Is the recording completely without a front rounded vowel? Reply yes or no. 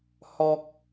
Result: yes